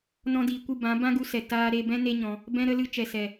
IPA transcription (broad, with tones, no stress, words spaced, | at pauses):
nɔ̃˧diː˨kʷɨ˦˨ bã˨˦ bã˦ɡu˧sɛ˨ taː˧ɾe˧bɛ̃˦ ne˦ɲɔ̃˧ | bɛ̃˧ɾə˧lɨ˧ t͡ʃɛ˨sɛ˨